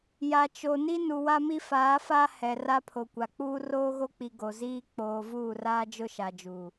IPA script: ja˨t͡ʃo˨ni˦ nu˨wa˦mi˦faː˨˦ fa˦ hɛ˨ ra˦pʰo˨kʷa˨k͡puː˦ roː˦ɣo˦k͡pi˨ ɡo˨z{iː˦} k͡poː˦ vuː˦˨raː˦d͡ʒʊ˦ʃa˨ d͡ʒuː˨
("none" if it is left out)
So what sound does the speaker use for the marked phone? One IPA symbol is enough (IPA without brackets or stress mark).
iː˦